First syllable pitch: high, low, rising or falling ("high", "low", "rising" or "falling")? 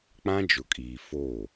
high